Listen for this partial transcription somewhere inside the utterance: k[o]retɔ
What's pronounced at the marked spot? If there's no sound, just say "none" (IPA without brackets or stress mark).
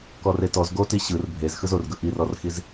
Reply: ɔ